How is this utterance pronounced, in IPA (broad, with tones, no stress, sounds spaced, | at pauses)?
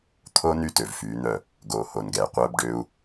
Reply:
t̪ʰ o˦ n y˦ t ø˨ v f yː˨˦ n̪ œ˦˨ | ɡ oː˨ h o˨ n ɡ ɛː˨ qʷ œː˦ b ɖ øː˦ u̯